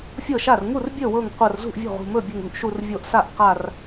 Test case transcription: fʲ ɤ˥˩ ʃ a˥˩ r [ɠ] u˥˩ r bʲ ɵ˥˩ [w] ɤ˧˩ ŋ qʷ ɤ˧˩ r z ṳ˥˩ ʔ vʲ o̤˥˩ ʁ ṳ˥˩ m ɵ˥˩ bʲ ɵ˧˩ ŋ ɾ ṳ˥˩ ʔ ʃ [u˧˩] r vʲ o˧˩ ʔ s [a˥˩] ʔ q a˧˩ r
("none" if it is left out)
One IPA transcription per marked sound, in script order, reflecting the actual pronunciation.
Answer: ŋ, w, u˧˩, a˥˩

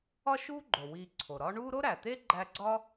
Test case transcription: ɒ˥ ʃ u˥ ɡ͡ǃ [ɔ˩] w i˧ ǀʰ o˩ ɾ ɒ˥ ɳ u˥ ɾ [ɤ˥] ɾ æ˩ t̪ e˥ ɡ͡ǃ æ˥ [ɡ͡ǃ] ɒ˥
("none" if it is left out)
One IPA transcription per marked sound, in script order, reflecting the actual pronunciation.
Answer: o˩, o˥, ɡ͡ǀ

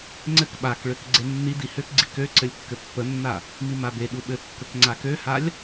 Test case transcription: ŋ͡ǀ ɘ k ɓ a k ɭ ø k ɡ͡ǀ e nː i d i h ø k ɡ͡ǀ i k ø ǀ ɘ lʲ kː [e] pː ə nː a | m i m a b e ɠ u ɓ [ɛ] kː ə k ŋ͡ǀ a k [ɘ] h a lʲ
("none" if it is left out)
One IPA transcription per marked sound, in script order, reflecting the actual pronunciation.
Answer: ɘ, ɘ, ø

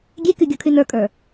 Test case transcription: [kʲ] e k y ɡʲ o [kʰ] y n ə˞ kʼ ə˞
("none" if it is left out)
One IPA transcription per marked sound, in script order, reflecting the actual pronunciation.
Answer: ɡʲ, kʰ

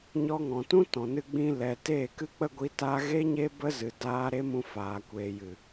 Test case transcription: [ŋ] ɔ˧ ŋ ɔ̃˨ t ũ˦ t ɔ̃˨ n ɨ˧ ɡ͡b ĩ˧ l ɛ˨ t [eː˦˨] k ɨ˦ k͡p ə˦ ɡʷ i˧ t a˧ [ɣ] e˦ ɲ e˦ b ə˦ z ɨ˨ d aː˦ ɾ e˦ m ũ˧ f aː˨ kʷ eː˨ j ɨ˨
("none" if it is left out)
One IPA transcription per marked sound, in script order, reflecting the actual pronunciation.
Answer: ɲ, eː˦˨, ɣ

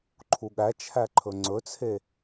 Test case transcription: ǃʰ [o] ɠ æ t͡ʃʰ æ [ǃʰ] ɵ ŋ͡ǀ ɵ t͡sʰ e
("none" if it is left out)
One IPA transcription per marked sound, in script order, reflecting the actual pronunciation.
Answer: u, ǃʰ

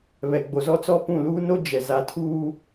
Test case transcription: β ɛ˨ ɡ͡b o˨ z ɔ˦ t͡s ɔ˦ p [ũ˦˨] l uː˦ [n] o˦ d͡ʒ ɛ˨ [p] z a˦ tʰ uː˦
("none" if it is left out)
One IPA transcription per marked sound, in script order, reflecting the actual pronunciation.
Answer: ũ˦˨, n, none

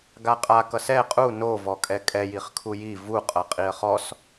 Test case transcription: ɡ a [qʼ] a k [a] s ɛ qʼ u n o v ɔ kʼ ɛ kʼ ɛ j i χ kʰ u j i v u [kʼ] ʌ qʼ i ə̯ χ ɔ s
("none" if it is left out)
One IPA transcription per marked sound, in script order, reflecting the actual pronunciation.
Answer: qʼ, ʌ, qʼ

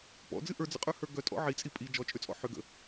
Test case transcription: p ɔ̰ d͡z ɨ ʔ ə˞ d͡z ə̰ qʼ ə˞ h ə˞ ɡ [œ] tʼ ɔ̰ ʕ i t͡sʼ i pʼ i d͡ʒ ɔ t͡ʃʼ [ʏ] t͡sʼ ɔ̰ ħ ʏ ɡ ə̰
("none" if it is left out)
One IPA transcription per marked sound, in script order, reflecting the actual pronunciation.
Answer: œ, ʏ

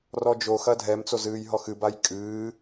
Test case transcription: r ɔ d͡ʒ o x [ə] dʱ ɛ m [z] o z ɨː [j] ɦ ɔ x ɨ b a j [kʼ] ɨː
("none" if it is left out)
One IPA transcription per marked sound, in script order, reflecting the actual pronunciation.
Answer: ɐ, t͡s, j, kʼ

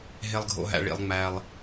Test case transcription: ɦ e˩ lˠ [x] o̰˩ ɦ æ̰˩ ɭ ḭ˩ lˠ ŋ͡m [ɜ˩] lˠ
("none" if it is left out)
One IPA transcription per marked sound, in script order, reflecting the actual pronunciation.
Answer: ɡʱ, æ˩

